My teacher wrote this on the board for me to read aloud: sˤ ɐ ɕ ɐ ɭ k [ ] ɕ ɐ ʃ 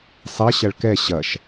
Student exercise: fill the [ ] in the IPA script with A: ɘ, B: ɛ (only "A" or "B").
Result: B